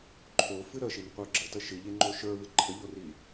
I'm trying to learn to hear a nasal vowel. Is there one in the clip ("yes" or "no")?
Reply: no